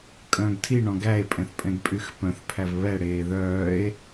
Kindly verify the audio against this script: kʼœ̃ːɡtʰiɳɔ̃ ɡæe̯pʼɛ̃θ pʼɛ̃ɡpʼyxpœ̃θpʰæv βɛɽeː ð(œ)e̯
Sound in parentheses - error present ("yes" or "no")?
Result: yes